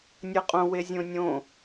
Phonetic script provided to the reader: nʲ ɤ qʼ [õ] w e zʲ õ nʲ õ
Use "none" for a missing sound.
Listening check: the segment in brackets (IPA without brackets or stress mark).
õ